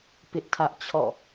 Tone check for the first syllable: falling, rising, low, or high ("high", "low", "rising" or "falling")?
high